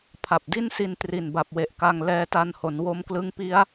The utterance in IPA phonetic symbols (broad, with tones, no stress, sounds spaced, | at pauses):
pʰ a˨˩ p̚ d i˥˩ n s i˧ n t r i˨˩ n b a˨˩ p̚ w e˨˩ ʔ k a˧ ŋ l ɛː˧ t a˧ n h o˩˦ n w o˧ m k l ɯ˦˥ ŋ p i˦˥ a̯